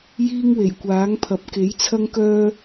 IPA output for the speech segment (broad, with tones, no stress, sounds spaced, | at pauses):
j iː˥ ŋ w e˨˩ j kʷ aː˨˥ ŋ pʰ ɐ˨˥ p̚ k e˨˥ j t͡sʰ ɐ˥ ŋ k œː˥